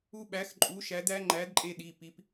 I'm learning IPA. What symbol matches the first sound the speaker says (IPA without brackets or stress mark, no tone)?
u